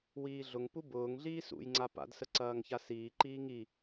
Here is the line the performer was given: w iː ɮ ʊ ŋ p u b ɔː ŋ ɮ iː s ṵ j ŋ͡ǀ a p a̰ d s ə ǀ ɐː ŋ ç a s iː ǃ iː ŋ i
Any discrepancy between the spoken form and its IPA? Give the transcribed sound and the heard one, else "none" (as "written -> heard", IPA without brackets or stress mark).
ɔː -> ʊː